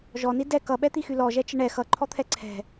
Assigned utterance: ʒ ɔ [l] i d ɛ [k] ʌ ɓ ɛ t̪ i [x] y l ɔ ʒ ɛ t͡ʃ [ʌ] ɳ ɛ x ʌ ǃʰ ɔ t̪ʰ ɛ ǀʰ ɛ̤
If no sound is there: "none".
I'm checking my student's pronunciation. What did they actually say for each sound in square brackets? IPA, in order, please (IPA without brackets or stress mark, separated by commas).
n, k, x, ə